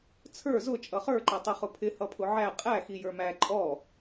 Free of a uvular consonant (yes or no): no